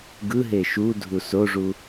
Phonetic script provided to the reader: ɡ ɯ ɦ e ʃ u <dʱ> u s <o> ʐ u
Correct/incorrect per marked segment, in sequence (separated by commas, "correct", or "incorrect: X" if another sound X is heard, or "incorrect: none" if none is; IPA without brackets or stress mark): correct, correct